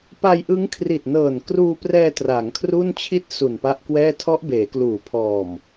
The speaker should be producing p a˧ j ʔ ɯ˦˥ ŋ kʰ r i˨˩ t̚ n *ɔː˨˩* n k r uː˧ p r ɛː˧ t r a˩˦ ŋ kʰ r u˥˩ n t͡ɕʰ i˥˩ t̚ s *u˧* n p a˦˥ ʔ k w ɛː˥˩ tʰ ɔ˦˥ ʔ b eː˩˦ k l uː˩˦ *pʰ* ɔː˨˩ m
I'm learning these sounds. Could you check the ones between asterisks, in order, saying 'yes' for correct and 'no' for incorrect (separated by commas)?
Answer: no, no, yes